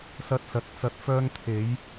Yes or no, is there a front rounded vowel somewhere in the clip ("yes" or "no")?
yes